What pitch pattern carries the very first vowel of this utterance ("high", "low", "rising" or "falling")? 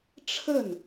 falling